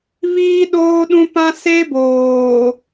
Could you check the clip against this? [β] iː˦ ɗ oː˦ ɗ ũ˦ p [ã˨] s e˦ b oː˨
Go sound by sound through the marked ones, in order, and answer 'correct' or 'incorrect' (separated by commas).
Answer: correct, incorrect